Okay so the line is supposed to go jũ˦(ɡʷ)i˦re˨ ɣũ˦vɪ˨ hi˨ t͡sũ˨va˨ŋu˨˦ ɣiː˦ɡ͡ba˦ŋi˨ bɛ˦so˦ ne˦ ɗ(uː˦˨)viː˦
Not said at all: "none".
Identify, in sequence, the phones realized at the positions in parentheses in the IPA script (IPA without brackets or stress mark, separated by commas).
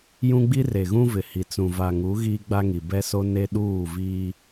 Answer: ɡ͡b, uː˦˨